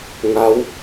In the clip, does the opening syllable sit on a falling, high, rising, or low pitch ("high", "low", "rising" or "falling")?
rising